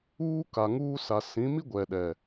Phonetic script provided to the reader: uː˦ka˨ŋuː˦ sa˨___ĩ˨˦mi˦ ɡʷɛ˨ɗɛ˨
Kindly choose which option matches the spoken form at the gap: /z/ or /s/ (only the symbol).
s